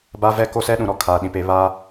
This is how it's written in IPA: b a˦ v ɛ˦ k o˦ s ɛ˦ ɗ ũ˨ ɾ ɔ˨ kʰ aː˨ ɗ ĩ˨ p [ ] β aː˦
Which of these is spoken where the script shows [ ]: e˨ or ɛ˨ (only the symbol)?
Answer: e˨